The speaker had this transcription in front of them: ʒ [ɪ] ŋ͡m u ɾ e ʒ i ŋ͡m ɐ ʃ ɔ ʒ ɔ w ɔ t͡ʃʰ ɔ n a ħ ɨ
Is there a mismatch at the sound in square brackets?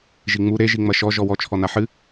yes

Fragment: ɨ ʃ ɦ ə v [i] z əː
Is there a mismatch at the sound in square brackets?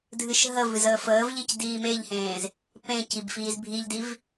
yes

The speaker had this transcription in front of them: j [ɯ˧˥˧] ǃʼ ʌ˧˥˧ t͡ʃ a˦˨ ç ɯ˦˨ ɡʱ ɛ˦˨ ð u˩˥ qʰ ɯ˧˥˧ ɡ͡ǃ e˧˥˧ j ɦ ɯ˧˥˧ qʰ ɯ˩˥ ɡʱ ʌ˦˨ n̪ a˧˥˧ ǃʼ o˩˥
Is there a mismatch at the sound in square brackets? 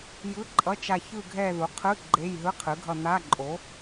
no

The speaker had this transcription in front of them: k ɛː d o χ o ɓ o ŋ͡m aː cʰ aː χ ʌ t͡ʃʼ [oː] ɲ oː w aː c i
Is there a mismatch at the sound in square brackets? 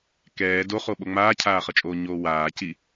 no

